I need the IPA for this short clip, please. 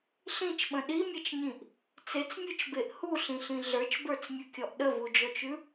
ɬĩt͡ʃɓə̃ ɗimʲet͡ʃɲĩʔ | t͡set͡smʲʉt͡ʃbeʔ huɬĩɬĩ ɮə˞t͡ʃbə˞t͡smʲʉkʲɔʔ ɗəvud͡ʒɔt͡ʃʉ

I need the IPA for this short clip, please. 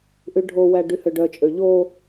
ʔyɖʱowæ ɖyhøɖœt͡ʃʼø ʎo

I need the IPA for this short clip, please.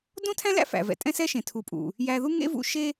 dõ˦tʰæ̃˦læ̰˦ fæ̰˨ vɛ̰˨tʼɛ̃˦ sɛ˦ ʃẽ˨tʰu˨pʼṵ˨ | jæ˧ðu˦ŋḛ˦vṵ˧ ʃe˦

